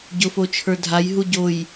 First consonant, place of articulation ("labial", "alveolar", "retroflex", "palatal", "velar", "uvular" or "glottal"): palatal